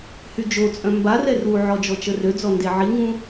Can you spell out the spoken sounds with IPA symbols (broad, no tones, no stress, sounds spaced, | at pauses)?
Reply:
h y d͡ʒ o t͡sʼ œ̃ m b a r ɛ r u ʕ ɔ d͡ʒ ɔ t͡ʃ ə r ø d͡z ɔ n d e ʕ i ŋ ũ